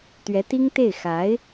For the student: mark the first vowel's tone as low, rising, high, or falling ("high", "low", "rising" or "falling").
rising